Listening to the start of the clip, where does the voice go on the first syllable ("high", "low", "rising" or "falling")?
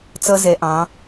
high